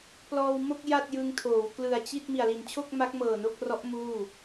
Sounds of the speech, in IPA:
p l ɔː˧ w m o˥˩ k̚ j a˥˩ t̚ j ɯ˧ ŋ tʰ oː˩˦ w k l ɯ˨˩ a̯ t͡ɕ i˥˩ t̚ m i˨˩ a̯ l i˨˩ n t͡ɕʰ o˥˩ k̚ m a˦˥ k̚ m ɤː˨˩ n o˥˩ k̚ r ɔ˦˥ ʔ m uː˥˩

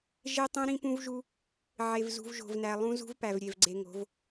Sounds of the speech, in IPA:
ʒ e˦ tˤ ũ˦ ɾ ĩ˦ p ũ˦ v ʒ u˦ | ʕ e˨ v z ṳ˨ v ʒ o̤˨ v n æ˨ lˠ ũ˦ z ṳ˦ v p æ˨ v ɾʲ e˨ v ɡ͡ǀ e˨ ŋ o̤˨˦ v

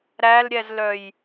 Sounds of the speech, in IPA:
ɾ æ l ɾʲ ɛ z l œ j

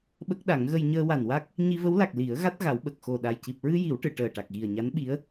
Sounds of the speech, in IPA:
ɓ ə˦˥ k̚ ɗ a˨˩˦ ŋ ɣ ə˧ j ɲ əː˧ w a˨˩ n w a˦˥ k̚ | ɲ i˧ v ə˧˥ w l a˨˩ k̚ l i˨˩˦ ə̯ ɣ a˦˥ t̚ ɣ a˨˩˦ w ɓ ə˨˩ k̚ x o˨˩ ɗ a˨˩ j c i˨˩ p̚ ɹ ɨ˧ j i˨˩˦ w ʈ ɨ˨˩˨ ʈ əː˨˩ ʈ a˨˩ k̚ ɣ i˨˩ ə̯ ɲ a˧˥ n ɓ i˧˥ ə̯

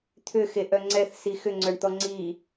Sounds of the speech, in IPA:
t̪ʰ ʏ x e ʔ œ ŋ͡ǀ ɛ θ s i x ʏ ŋ͡ǀ œ ɳ t̪ ɔ ŋ͡ǀ i

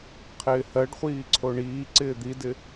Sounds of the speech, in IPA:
qʰ ɪː h ɜ ɖ χʷ iː ǀʰ o ɳ iː ǀ ɪː d̪ i d ɪ

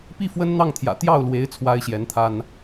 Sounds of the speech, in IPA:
p i˥˩ f w ə˥ n n̪ ɑ˥˩ ŋ t̪ʰ j ä̰˨˩ t̪ j ɑ˥˩ ʊ̯ l w e˧˥ ɪ̯ t͡sʰ w a˥ ɪ̯ ɕ j ɛ˧˥ n t̪ʰ a˥ n

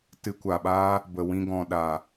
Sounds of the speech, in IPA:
t ɨ˧ kʷ a˨ ɓ aː˦ | b ə˨ w ĩ˧ ɡ ɔ̃˨ ɗ a˨

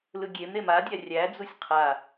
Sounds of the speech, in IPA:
l ɯ ɡʲ e m ɾ e m a dʲ æ rʲ æ d͡z u sʲ qʰ a

